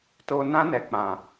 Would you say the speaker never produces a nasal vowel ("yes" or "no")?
no